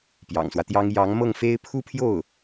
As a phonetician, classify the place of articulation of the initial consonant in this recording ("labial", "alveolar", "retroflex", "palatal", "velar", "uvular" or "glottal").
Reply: labial